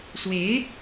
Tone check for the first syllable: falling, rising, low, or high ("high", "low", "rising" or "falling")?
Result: rising